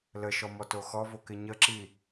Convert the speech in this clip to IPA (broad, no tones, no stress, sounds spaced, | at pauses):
l ə ʃ ɔ m ɔ t o x ɔ v o k ɪ ɲ ə ǁ i